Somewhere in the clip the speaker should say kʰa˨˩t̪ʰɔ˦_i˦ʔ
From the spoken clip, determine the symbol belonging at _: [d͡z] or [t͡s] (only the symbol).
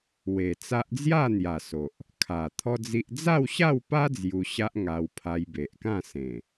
d͡z